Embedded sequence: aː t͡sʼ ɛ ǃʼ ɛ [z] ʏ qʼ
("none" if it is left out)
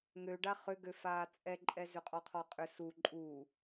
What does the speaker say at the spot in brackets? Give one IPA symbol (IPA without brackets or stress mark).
z